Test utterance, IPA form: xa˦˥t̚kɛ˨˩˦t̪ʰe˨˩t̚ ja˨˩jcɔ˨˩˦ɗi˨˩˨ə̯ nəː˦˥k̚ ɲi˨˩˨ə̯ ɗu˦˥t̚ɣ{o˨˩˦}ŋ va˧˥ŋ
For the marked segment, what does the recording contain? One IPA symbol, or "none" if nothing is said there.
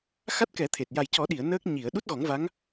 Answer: ɔ˨˩˦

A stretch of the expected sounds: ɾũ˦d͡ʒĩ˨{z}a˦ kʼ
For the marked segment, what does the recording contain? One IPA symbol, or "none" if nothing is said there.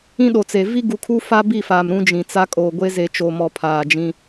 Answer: t͡s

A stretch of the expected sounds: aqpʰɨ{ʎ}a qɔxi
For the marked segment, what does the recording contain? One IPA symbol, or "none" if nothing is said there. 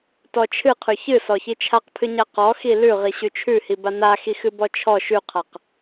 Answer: ɲ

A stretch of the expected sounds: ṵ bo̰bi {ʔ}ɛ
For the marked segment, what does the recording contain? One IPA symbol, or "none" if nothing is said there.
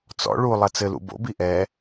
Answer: ʔ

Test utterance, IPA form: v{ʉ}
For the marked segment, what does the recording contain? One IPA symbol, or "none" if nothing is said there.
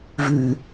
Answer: ʉ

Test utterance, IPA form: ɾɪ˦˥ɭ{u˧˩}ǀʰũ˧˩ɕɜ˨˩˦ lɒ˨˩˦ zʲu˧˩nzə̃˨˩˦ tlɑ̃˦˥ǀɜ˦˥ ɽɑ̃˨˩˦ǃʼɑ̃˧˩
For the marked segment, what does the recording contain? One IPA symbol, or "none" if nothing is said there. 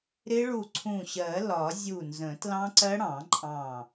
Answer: u˧˩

